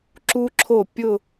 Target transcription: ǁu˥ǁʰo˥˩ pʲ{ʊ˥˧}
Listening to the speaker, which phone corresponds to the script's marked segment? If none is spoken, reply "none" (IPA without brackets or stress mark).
ʊ˥˧